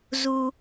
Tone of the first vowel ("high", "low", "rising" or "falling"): low